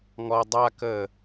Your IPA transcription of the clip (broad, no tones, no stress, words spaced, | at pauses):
ŋɔ dˤa kə